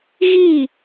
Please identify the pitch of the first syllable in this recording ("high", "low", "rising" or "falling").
falling